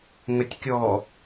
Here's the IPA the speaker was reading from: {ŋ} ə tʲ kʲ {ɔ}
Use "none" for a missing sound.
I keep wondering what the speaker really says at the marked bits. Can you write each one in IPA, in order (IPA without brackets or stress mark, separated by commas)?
ŋ, ɔ